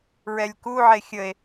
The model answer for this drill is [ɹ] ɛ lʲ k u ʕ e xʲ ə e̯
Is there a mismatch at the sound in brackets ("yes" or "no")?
no